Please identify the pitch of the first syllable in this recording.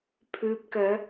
low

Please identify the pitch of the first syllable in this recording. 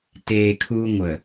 low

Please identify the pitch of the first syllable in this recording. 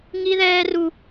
high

